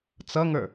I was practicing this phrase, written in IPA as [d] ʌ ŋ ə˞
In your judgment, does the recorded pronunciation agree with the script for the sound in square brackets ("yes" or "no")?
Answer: no